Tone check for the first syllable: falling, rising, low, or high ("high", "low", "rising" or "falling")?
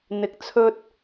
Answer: rising